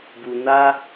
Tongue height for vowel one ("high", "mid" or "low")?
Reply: high